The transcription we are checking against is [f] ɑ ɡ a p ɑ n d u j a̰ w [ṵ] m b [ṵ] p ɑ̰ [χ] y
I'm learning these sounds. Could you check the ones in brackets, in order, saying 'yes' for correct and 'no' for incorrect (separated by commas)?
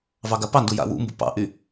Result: no, yes, yes, no